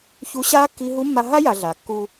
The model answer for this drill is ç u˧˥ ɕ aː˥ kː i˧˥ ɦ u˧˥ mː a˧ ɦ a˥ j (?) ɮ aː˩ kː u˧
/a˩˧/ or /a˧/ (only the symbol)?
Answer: a˩˧